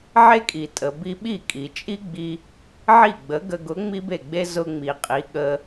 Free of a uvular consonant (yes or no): no